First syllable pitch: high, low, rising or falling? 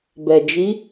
low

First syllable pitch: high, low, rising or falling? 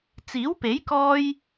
rising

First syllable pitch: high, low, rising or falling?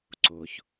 low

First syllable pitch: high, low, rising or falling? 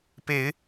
rising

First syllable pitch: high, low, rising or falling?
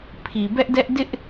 low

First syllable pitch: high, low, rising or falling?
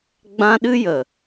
high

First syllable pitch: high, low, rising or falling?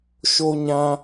high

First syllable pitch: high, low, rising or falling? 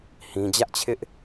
high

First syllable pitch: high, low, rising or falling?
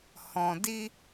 low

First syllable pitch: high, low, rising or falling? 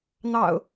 low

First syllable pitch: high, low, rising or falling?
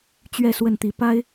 falling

